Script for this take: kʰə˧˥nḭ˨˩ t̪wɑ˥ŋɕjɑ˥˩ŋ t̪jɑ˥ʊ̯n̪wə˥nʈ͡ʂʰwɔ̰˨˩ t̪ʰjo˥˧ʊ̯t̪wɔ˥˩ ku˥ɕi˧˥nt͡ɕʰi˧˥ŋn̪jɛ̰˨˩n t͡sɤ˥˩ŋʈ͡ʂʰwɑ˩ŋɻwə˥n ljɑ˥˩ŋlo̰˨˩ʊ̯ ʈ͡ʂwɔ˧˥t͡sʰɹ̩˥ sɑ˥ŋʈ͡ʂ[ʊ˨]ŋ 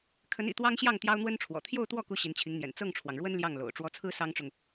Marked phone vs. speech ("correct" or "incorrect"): correct